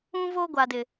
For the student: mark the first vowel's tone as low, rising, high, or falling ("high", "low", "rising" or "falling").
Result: high